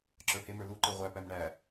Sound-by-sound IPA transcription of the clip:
ǁə˞hemə˞ luǃe ʁʷæpæm ɳæ

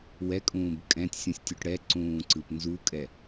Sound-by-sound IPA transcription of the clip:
wɛkʼũːb kʼɛ̃tʲ sʲũsʲtʲuʈɽɛǀũː ǀɯpnzukʼɛ

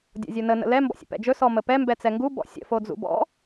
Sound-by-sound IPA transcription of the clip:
dʲɔ̰zʲonə nə̰lɛ mbɔ̰sʲə̰pɛ̰d͡ʒɵ sɔməpɛ mbɛt͡sɛŋɡu bɔ̰sʲə̰ fod͡zṵbɔ̰

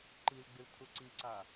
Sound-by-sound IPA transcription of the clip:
ǃilɡ͡bɨl tʰuǀiǀa

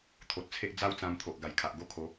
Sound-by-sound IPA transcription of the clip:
t̪ʰo˨t̚t͡sʰe˦ʔ d͡za˦wt͡sã˧m t̪ʰo˨ʔɡa˨˩jkʰa˨ʔ ɡo˦kʰo˨˦

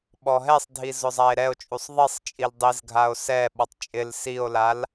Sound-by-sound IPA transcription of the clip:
ɓɔɦɛsˤdʱiz ʊzˤae̯ɾɛo̯t͡ʃʼusˤ ðˤisˤ t͡ʃʼildˤizɡʱao̯ sɛɓɔtˤ t͡ʃʼɪl sio̯lal

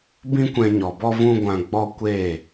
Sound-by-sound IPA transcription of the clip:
bĩ˦kʷɛ̃˧ɲɔ˨bɔ˦ vũ˦ɡʷã˧ɡ͡bɔ˦ kʷeː˦˨

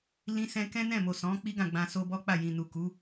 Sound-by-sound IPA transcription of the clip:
lĩ˦sɛ̃˦ kɛ̃˦nɛ̃˦˨ mo˨sɔ̃˨˦ k͡pi˦ɡã˦˨ɡ͡bã˧ so˧bɔ˦ k͡pa˦˨jĩ˨ nu˨ku˨˦

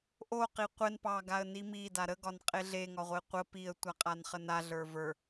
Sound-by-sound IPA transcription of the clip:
ʔo qiqʷɛn pɑ ɡaə̯nimi daɾə ɡɒnqʼeɮe ŋɒʁʷeqʷə piə̯ tʷaqʼanχəna ɮə˞və˞

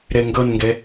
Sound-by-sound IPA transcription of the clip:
ɾɛŋɡʌnŋɡɛ

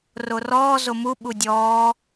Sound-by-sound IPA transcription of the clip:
rorɔː zomu ɓudʲɔː

